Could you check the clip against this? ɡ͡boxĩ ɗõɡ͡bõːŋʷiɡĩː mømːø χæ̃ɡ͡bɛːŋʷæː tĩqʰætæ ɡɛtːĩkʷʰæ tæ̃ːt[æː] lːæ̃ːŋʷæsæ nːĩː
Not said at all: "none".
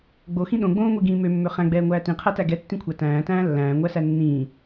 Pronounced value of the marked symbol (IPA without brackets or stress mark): æ̃ː